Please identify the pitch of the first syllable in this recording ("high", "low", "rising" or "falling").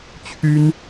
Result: high